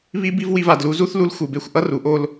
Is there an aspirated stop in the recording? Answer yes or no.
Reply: no